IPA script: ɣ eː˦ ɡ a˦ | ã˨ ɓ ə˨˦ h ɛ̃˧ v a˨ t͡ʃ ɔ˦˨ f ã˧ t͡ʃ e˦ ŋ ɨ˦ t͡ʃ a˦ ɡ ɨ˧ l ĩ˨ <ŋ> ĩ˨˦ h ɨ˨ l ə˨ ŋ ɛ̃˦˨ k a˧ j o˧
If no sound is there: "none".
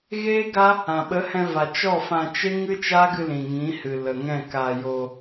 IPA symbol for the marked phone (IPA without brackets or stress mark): ŋ